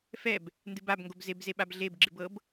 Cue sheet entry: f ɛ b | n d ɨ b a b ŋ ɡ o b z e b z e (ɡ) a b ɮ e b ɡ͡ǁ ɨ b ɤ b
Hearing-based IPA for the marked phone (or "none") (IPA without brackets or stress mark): ɓ